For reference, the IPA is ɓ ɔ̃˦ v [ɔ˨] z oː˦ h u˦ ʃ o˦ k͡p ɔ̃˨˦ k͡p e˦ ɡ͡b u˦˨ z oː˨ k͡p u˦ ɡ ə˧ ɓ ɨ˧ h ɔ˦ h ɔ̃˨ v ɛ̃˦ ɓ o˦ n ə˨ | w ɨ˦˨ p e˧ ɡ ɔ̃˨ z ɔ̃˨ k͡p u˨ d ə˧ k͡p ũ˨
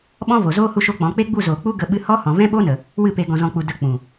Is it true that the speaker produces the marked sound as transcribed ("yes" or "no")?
no